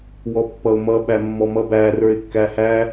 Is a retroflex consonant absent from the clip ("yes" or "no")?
yes